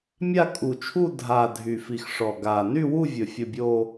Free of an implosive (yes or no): yes